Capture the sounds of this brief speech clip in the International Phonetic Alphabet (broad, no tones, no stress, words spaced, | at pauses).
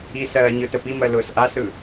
isɜː ɲɯtəpimɜ lʊːsʔasɯ